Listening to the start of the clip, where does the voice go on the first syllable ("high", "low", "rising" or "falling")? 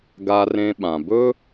high